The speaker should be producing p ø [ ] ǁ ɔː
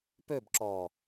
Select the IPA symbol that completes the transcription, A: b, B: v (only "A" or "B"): A